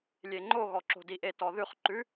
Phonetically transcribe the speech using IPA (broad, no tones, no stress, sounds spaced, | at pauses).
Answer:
lʲ e ŋ͡ǃ o ɣ ɔ ǁ o̤ d i ʔ e t ɔ ð ʉ χ ǃ ʉ